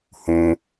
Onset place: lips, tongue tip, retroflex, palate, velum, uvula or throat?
throat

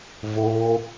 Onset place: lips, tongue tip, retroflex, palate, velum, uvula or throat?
lips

